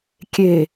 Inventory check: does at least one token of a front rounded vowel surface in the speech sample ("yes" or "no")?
no